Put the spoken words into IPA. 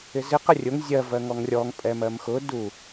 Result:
ɪ z ɪ q ə rʲ ʊ ŋ zʲ ɜ v ɜ ŋ ɔ ŋ rʲ ɔ ŋ pʼ ɛ m ɜ m x ʊ d u

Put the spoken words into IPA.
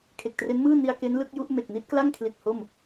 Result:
kʰ e˨˩ k̚ t r e˦˥ n m ɯː˥˩ n i˧ a̯ k e˦˥ n l ɯ˦˥ k̚ j u˦˥ ʔ m e˨˩ k̚ n i˦˥ t̚ k l a˥˩ ŋ kʰ l i˨˩ t̚ h o˥˩ m

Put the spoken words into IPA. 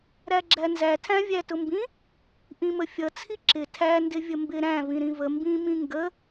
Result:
ɾ æ ɡ͡ǁ æ n z æ tʰ æ̃ vʲ æ t ʊ m b ĩ | ʔ ĩ m ə fʲ ʌ t͡sʰ i ǁ ɪ tʰ æ n d ɪ vʲ ə m b ɪ ɾ æ̃ v ĩ ɾ ĩ v ə m b ĩ m ĩ ŋ ɡ ə

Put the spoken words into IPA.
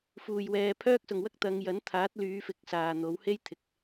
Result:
f uː˨˩ j w ɛː˨ pʰ œː˥ k̚ s ʊ˨ ŋ w ɐ˥ k̚ t̪ ɐ˨˧ ŋ j ɐ˨˥ n t̪ʰ aː˨˥ t̚ l yː˨˧ f ɪ˨ k̚ s aː˨ n̪ o˨˥ w h e˥ j t̪ʰ ɪ˨ k̚

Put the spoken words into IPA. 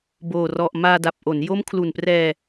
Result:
b oː˨˩ r ɔ˨˩ ʔ m aː˧ d a˨˩ p̚ ʔ o˩˦ n j o˦˥ m kʰ l u˨˩ n p r ɛː˧

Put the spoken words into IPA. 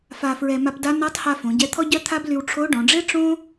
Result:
f a˧ f ɹ ɛ˧ m a˧ p d a˧˥ n a˧˥ tˤ h a˧ f õ˩˧ ɟ ɛ˧˥ t̪ʰ ɔ˥ ɟ œ˥ t̪ʰ a˥ b l y˧ w ʈ͡ʂʰ o˧˥ ɖ ɔ̃˩˧ ɖ͡ʐ e˥ ʈ͡ʂ õ˥

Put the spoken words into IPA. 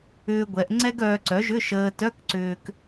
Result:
ʏː˧ ɡʷ ɛ˩˧ ʔ ŋ͡ǀ ɛ˥ ɡ œː˧ ǀ œ˩˥ ʒ ʏ˧˥˧ ʃ əː˧ t œ˧˥˧ k ǀ ʏː˧ k

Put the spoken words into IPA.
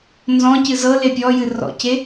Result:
n z ɔ̃ c ɨ z ɤ l e pʲ ɔ j ɨ r ɔ̰ c e

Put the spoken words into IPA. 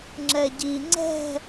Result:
ŋ͡ǁ ɛ ɟ i ŋ͡ǀ ɛ̤

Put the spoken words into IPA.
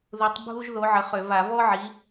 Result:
ð u˨˦ tˤ bʱ u˥ ʒ ð o˨˦ ʕ ə˨˦ χ ø˧˩˧ v a˧˩˧ v ɔ˥ ʕ i˨˦

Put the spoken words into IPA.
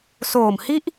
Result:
s oː˨˩ m h i˥˩ ʔ

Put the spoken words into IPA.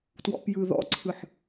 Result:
t w ɔ̰ p j ɯ ð ɔ̰ ǀʰ ɯ ħ

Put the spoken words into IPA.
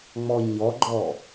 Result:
ŋ͡m ɔ ɲ ɔ ɡ͡ǃ ɔ

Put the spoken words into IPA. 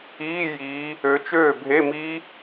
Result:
iː˧˥˧ j iː˨˦ | ø˨˦ t͡ʃ øː˥˩ bʱ e˧˥˧ m iː˦˥

